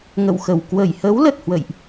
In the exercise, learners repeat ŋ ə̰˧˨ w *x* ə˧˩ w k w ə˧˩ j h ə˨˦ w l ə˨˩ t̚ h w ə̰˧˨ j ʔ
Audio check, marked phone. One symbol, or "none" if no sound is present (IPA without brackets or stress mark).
x